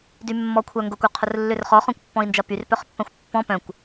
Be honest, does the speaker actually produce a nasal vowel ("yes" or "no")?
yes